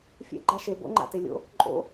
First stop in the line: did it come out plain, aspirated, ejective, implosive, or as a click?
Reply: click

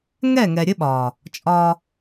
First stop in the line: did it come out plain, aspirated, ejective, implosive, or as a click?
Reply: implosive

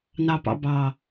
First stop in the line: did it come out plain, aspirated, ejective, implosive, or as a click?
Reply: plain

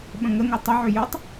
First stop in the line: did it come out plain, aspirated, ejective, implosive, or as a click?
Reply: implosive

